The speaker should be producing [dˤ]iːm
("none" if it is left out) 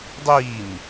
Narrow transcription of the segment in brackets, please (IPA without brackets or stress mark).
dˤ